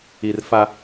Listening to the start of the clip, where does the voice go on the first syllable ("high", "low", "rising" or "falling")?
low